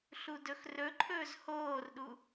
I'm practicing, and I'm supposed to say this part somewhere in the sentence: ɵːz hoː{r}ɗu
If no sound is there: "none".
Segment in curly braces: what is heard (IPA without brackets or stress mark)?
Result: r